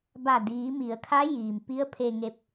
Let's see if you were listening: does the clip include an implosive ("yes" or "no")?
no